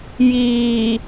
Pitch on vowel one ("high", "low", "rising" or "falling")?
low